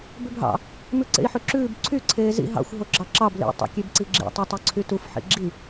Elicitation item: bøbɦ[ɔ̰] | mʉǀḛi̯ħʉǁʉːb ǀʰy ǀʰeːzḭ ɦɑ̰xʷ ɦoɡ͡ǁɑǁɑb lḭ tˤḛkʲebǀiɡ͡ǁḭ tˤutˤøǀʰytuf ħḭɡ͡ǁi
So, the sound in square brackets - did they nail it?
no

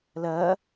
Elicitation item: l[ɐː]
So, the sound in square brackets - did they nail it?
yes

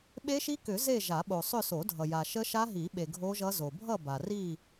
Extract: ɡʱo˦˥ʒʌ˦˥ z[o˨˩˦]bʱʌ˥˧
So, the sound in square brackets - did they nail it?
no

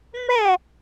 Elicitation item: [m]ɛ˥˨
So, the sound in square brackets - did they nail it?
yes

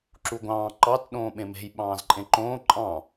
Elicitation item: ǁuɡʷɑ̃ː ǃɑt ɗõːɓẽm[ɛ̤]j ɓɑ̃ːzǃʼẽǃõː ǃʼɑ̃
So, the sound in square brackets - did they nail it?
no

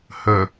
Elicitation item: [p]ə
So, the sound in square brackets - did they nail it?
no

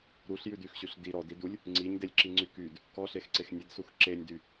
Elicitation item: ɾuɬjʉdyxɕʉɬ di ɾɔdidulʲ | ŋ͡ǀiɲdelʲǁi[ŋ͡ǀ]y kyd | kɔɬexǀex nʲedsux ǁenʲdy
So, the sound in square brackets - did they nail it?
yes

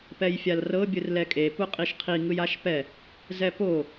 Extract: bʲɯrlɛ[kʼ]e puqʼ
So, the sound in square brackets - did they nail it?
yes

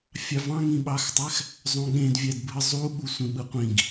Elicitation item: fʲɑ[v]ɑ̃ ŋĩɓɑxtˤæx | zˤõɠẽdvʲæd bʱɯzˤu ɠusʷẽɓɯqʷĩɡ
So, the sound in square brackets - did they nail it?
yes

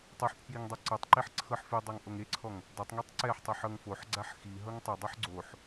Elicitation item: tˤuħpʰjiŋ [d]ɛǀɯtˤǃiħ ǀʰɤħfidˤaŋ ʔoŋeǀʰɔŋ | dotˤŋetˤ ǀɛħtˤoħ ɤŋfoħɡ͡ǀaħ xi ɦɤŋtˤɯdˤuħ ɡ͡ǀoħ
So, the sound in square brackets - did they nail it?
no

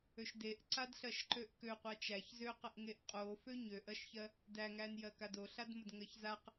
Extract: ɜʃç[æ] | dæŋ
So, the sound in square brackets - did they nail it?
no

